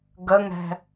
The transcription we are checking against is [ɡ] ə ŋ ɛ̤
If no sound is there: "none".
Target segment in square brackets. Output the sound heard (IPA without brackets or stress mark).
ɡ